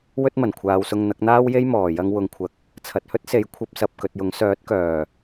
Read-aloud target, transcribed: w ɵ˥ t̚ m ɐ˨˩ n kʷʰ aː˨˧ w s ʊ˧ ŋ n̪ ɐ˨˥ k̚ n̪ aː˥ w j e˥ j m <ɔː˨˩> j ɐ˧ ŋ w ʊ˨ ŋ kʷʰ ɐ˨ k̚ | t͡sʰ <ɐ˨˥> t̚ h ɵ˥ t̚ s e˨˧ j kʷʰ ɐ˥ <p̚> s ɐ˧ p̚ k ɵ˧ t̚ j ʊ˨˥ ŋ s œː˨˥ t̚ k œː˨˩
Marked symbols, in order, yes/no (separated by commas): yes, no, yes